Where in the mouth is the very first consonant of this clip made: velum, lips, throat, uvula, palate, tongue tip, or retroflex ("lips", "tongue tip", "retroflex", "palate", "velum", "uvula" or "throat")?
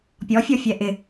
lips